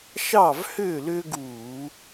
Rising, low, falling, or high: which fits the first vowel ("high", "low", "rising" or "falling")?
falling